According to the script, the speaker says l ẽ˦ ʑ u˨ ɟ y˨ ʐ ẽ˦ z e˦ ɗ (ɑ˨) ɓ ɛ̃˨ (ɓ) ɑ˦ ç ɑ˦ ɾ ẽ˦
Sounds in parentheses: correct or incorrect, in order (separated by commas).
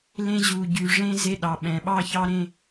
correct, correct